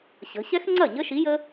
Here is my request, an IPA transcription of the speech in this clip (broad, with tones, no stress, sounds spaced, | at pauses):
ɕ ə̤˩˧ ɕ ɛ˦˥ x ŋ͡ǀ ɐ˥˩ ɲ ə˦˥ ʃ i˨˥ j ə˦˥